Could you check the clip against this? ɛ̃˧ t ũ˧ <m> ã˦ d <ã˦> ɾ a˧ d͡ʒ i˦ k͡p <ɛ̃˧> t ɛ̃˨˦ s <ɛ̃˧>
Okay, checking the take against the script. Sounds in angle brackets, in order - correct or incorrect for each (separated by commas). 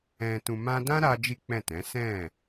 correct, correct, incorrect, incorrect